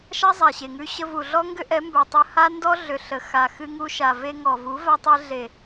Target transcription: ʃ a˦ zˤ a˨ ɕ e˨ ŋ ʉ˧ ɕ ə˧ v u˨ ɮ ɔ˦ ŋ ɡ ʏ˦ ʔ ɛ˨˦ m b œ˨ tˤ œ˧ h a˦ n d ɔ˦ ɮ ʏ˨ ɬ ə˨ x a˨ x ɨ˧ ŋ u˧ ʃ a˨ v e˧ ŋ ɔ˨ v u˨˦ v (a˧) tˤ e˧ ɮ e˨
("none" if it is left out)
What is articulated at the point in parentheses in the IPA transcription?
a˧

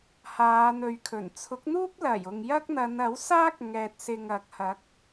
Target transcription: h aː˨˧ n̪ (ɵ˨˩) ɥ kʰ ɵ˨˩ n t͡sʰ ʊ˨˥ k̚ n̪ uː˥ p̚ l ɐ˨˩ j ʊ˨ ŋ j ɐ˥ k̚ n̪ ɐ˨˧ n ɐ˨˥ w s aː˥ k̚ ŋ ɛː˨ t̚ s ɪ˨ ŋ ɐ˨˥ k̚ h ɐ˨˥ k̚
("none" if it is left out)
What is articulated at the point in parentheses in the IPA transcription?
ɵ˨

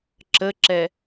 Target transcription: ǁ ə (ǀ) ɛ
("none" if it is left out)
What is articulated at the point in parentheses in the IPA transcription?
ǁ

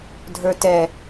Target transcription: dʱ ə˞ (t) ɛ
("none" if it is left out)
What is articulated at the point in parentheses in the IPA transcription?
t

